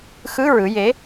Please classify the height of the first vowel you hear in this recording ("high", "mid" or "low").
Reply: high